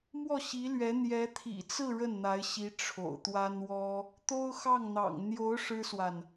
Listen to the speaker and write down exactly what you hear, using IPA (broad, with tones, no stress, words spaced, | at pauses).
mwɔ˥˩ɕi˧˥lɥɛ˧˥ n̪jɛ˧˥t̪ʰḭ˨˩t͡sɹ̩˥˧ ɻə˥˩nn̪a˧˥ɪ̯ɕi˧˥ ʈ͡ʂʰo̰˨˩ʊ̯t̪wa˥n wɔ˥ | t̪o˥ʊ̯xɑ˥˩ŋn̪ɑ̰˨˩ŋ n̪jo˧˥ʊ̯ ʂɻ̩˥swa˨n